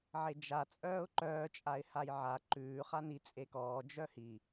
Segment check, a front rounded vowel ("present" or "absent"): present